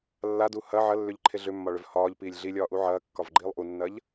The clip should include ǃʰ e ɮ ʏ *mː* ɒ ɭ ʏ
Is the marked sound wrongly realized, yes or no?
no